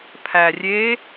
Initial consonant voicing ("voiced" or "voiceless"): voiceless